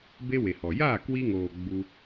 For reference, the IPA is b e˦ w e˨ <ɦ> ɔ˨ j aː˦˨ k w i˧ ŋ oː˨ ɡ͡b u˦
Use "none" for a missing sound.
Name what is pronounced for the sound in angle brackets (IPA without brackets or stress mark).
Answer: h